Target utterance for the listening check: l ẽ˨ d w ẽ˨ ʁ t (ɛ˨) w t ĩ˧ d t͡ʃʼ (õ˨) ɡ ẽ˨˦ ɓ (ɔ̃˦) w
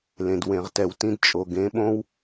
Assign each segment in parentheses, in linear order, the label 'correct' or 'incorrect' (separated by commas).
correct, incorrect, incorrect